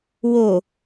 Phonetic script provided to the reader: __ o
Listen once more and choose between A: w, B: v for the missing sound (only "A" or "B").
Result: A